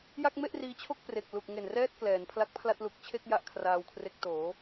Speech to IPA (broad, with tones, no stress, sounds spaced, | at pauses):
j a˥˩ k̚ m e˥˩ ʔ r iː˧ t͡ɕʰ o˥˩ k̚ p r e˨˩ k̚ l u˨˩ k̚ ŋ e˨˩ n r ɛː˥˩ t̚ k l ɛː˩˦ n pʰ l a˦˥ k̚ pʰ l a˥˩ t̚ l u˨˩ k̚ t͡ɕʰ e˥˩ k̚ j a˥˩ ʔ kʰ r aː˧ w kʰ r e˦˥ k̚ t oː˩˦